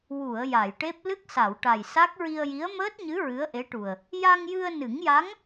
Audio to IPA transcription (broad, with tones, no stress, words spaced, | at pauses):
wu˨˩˨ə̯ ja˨˩˨jʈe˦˥p̚ lɨ˦˥k̚sa˨˩˨wʈa˨˩j sa˦˥k̚ ɹi˧ə̯ji˧˥ə̯ məː˦˥t̚ɲɨ˧˥ ɹɨ˧˥ə̯ʔe˧˥ʈu˨˩ə̯ | ja˧ŋjɨ˧ə̯nɨ˨˩˦ŋja˧˥ŋ